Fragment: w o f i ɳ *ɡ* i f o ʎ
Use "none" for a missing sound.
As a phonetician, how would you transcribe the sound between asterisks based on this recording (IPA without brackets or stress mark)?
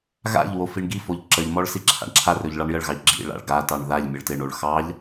ɡ